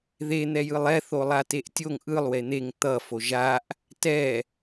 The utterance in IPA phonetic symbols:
ðen̪ɛjɯlˠ ɛ θolˠateʔtʲoŋ ʔɯlˠwe n̪eŋ t̪ʌ foʒaʔ | tɛ

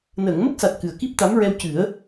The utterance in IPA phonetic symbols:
nəː˨˩˨ŋmə˦˥k̚sa˨˩t̚ kɨ˨˩ə̯ki˦˥p̚t̪a˧˥m ɹɛ˧wcɨ˨˩˦ə̯

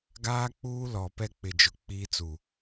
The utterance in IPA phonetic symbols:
ɡaː˦k͡puː˦lɔ˨ pɛ˦k͡pɪ˨d͡ʒʊ˨ k͡piː˦t͡su˨

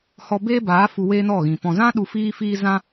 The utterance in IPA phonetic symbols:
hɔ˧ be˦baː˨˦ fu˧weː˦nɔ˦˨ɣĩ˨ pɔ̃˨zã˦ ɗu˧fiː˦ fiː˦ zã˦

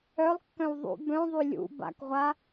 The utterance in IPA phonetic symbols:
œlˠkːœ̃w ðˤṵ bœ̃ðˤy lʲṵ ba̰kʁʷa

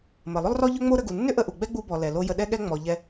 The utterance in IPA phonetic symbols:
mə˩ lˠʏ˥lˠrɔ˥ʎʏ˥ŋ͡mo˥ ɾə˧ɡu˩ nːʏ˥ʔə˧ʔu˩ ɡ͡bɛ˥ɡ͡bu˧bɔ˩ lɛ˩lo˧ jə˧ɗɛ˥ɠɛ˥ ŋ͡mɔ˩ʎɛ˧

